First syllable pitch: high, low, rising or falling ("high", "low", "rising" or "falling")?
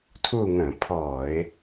falling